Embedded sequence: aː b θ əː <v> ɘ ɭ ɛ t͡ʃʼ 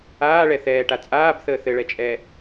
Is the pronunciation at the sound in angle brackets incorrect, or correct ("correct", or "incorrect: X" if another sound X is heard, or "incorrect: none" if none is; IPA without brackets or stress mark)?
incorrect: θ